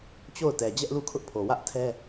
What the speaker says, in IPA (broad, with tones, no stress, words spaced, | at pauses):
t͡ɕo˦˨ʊ̯tɛ˨ d͡ʑɛ˦ʔlu˦˨kʰʊ˦ʔpʰo˨ wä˦ʔtʰɛ˦